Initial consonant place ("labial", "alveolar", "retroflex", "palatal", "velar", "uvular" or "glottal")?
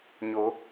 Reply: palatal